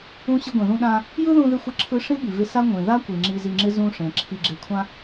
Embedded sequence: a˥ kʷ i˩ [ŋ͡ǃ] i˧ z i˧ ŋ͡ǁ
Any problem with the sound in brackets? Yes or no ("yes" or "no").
yes